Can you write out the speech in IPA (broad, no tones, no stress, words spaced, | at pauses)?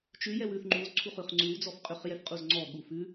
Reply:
t͡ʃʉ jɛwʉθ ŋ͡ǃuz ǀʰuχʉχŋ͡ǀʉw d͡zɔfqʼʉχ jɛfqʼuzŋ͡ǀɔ ɠufʉ